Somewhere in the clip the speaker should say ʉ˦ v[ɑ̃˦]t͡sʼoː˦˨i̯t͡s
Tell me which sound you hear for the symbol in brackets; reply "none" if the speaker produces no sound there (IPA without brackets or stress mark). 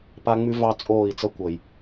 ɑ˦